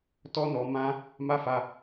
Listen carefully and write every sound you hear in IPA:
t ɔ˦ n ɔ˧ m ã˦ | m a˦ f a˧

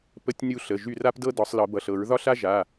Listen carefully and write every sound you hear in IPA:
p ə˦˨ tʲ nʲ u˦˨ ɬ ə˩˧˩ ʒ y˦˨ r a˥ p d ɤ˥ d ɒ˨˩˦ sˤ l ɤ˨˩˦ b ʌ˩˧˩ ɬ ɤ˨˩˦ ɹ ð ɒ˥ ɬ a˥ ʒ a˩˧˩

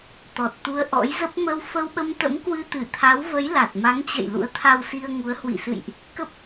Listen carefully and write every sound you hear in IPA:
t̪ ɔ˨˩ t̚ t̪ u˧ ə̯ ʔ ɔ̰˧˥ j z ə˦˥ p̚ m ə˧ w f ə˧ w ɓ ə˧ m t̪ ə̰˧˥ m k w ɨ˧ t̪ ɨ˧˩ t̪ʰ a˨˦ w v ə˨˦ j l a˨˩ t̚ m a˨˦ ŋ t͡ɕ ə̰˧˨ j l ṵ˧˥ ə̯ t̪ʰ a˧ w s i˧ ə̯ ŋ u˨˦ ə̯ h w ḭ˧˨ s ɨ̰˧˨ j ʔ | k ə˦˥ p̚

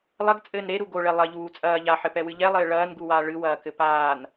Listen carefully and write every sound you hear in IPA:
lˠ ɐ ɡ t͡sʼ ɘː n ɾ e ɾ u ɡ o ɭ ɛ lˠ ɐ ʎ uː t͡sʼ ɐː ʎ a ħ ɘ p ɛ w ɨ ʎ ɛ lˠ ɘː ɭ ɐː n ɡ u w aː ɭ ɨ w ɐː k ɘ p aː n

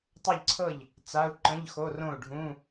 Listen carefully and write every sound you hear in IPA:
tˤ ɤ˥˨ ʎ ǀʰ ɤ˥˨ ʎ | t͡s a˧˥˧ u̯ ǃ ə̃˧˥˧ ʎ x o˧˥˧ r õ˥˨ u̯ ɖʱ ũ˧˥˧

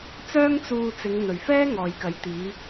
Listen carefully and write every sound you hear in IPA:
t͡s œː˥ ŋ t͡s uː˧ t͡s ɪ˨˧ ŋ n̪ ɵ˨ ɥ f ɛː˥ ŋ ɔː˨ j k ɐ˨˥ j t̪ iː˨˧

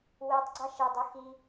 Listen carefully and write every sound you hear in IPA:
w e tˤ ɡ͡ǀ ɑ ʃ e dˤ u x i

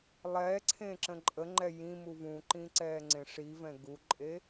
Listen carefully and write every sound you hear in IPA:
lˠ ɛ ǀʰ ẽ ǁ ə̃ ǃʼ ə ŋ͡ǃ ɛ j ĩ m u v ũ ǃ ĩ ǀ ɛː ŋ͡ǀ ẽ ʂ i v ɛ̃ ɡ u ǃʼ e

